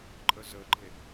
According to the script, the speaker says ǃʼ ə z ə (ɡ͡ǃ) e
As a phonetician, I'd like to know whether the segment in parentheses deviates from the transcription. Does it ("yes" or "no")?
no